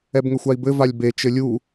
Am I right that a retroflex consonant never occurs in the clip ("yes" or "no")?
yes